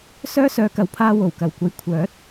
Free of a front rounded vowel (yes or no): no